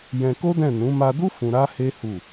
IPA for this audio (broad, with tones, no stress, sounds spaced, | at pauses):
j ɛ̃˧ k o˦ d ɛ̃˦˨ n ũ˨˦ m a˧ d u˦ f ũ˧ ɾ a˦ h e˦ h u˦˨